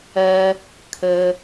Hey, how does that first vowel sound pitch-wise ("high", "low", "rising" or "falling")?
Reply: low